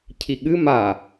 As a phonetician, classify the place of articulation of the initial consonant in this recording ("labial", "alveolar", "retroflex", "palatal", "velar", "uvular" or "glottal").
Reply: palatal